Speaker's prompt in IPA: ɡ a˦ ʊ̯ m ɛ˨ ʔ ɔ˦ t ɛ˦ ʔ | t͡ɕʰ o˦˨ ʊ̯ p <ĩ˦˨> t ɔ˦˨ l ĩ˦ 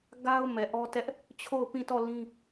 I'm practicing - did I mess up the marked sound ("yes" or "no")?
no